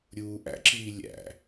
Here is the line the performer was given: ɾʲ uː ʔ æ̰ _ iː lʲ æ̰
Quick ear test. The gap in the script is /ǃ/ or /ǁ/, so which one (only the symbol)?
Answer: ǁ